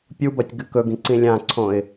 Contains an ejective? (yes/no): no